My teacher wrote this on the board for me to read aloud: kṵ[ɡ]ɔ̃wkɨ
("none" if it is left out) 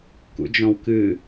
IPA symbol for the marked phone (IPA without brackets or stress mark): d͡ʒ